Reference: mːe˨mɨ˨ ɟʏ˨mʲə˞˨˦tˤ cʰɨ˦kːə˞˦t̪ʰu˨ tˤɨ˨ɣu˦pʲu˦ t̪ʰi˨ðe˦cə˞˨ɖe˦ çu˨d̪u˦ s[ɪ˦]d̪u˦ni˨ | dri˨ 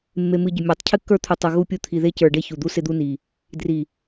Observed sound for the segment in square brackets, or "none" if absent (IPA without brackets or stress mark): ɪ˦